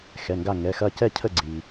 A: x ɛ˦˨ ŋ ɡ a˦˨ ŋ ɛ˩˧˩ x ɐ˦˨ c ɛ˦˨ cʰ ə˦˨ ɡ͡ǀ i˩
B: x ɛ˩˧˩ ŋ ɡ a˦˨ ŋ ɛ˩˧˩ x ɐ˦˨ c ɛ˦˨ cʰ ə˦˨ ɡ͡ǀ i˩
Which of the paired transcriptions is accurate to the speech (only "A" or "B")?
B